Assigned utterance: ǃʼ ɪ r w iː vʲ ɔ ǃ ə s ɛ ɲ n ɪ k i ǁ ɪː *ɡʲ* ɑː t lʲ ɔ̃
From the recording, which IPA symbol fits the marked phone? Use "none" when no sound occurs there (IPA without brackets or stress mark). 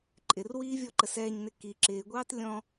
ɡʷ